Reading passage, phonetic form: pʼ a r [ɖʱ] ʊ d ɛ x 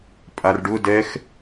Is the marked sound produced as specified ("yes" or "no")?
no